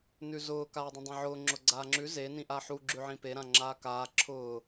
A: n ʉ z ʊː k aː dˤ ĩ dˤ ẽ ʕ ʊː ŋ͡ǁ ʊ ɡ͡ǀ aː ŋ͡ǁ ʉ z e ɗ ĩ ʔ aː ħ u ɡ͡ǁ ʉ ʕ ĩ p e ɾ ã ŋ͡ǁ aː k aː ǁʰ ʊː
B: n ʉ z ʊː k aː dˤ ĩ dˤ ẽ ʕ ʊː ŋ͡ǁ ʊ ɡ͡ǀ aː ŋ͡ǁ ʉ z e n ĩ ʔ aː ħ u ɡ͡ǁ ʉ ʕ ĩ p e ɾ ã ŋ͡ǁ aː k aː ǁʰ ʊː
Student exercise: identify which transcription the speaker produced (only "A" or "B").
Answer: B